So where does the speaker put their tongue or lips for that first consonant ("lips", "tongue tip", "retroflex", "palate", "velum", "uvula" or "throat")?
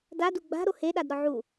tongue tip